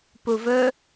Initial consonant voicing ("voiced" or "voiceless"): voiceless